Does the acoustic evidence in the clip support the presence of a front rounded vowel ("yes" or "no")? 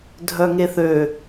yes